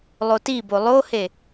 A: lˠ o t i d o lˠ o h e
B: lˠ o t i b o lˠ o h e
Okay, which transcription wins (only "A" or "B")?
B